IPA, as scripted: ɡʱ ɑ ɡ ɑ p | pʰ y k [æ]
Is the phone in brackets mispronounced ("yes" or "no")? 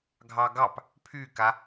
yes